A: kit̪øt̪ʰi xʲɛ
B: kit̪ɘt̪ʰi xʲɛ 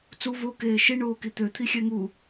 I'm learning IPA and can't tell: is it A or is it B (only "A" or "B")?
A